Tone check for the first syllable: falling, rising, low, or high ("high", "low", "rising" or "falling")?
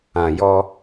low